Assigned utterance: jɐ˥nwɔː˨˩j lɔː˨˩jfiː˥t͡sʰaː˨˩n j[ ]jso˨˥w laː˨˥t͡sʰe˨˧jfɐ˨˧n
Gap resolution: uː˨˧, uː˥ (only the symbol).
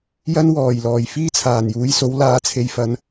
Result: uː˨˧